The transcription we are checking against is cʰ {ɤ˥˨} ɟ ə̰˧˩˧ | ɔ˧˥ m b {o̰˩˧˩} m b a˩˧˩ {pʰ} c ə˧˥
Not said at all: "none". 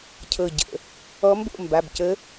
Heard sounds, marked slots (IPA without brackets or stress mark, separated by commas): ɤ˧˩, o̰˥˨, b